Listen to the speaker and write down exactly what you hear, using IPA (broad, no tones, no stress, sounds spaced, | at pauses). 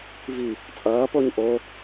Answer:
v i | t͡sʼ ʌː p o ɲ ʔ o